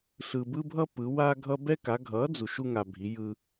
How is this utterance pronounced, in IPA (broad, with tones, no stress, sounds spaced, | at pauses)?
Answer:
ɬ ɯ˧ b ɯ˥ bʱ ʌ˥ p ɯ˨˥ w a˥ ɡʱ ʌ˥ b ɛ˥ k a˨˥ ɡʱ ʌ˨˥ d͡z u˧ ʃ u˥ ŋ a˧ bʱ i˨˥ j ɯ˥